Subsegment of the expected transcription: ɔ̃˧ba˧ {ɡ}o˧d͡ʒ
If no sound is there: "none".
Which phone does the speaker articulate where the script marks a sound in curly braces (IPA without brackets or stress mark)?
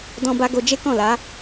ɡ